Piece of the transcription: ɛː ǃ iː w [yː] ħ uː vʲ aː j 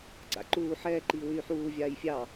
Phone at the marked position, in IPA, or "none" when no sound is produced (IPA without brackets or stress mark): yː